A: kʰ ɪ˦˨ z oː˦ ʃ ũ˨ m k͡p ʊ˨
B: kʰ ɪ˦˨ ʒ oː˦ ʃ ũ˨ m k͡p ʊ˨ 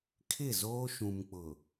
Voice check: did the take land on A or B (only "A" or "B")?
A